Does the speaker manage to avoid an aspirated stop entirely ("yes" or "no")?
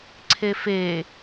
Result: no